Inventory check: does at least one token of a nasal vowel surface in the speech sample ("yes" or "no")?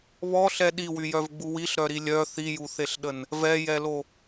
no